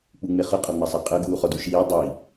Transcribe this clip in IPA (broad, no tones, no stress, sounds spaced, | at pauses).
k͡p u ŋ͡m e χ ɤ qʼ ɔ ŋ͡m a sˤ a qʼ ɤ ɡ uː χ ɔ d u ʃ iː dˤ i